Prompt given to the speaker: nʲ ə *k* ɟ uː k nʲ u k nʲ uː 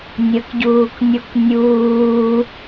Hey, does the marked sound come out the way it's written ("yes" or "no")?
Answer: yes